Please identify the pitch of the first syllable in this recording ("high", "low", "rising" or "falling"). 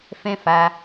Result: high